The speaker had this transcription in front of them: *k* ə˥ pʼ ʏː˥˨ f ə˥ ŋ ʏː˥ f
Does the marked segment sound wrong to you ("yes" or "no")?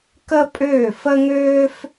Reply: no